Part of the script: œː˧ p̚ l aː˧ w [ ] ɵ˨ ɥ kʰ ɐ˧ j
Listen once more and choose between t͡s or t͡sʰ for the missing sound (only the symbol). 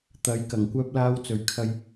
t͡s